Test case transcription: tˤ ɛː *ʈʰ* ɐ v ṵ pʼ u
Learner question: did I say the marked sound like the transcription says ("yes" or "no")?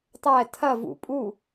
no